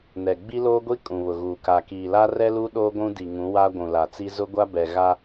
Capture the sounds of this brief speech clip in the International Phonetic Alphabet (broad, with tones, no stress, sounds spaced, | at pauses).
n ɛ˨ ɡ͡b i˦ l oː˦ ɡʷ i˦ kʼ ũ˨ β ʊ˨ ɣ uː˨ k a˨ k iː˨ l a˦ r ɛ˦ l u˦ ɗ oː˦ ɡʷ ũ˦ d i˨ ŋ ũ˨˦ w a˦ ɡʷ ũ˨ l a˨ t͡s i˦ z ʊ˦ ɡʷ a˦ b ɛ˨ ɣ a˦